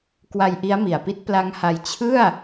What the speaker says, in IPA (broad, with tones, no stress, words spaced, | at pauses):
kwa˧jʔi˦˥a̯mi˨˩a̯ pi˦˥t̚pla˦˥ŋha˧j t͡ɕʰɯ˥˩a̯